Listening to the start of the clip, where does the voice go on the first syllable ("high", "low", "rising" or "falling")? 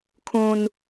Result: high